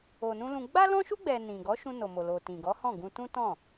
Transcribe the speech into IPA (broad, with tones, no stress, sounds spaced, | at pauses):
o˨ n ũ˧ l ũ˧ ɡ͡b a˦ l ɔ̃˦ ʃ u˦ ɡ͡b ɛ˧ n ĩ˨ ɡ ɔ˨˦ ʃ ũ˧ n o˨ m o˨ l o˨ t ĩ˨ ɡ ɔ˨˦ h ɔ̃˦˨ ɡ ũ˧ t ũ˦ t ɔ̃˦˨